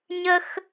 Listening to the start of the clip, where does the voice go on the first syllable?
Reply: high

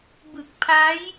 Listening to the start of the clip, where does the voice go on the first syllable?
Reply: low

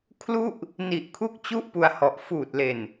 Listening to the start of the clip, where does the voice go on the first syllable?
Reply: falling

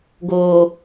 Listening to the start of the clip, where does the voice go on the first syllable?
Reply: low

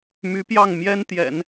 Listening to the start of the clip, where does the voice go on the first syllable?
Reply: rising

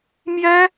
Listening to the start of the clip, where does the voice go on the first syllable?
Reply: high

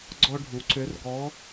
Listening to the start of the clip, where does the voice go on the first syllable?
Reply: high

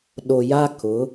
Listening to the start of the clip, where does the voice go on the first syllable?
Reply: low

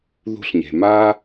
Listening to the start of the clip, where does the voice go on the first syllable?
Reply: high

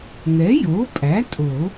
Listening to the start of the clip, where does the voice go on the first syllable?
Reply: rising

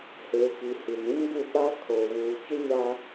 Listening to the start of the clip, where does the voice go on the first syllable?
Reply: low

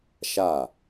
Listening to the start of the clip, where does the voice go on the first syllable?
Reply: falling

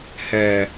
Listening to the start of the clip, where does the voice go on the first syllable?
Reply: low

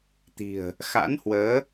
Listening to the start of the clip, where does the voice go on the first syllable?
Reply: low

